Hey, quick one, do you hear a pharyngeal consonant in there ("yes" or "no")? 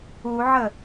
yes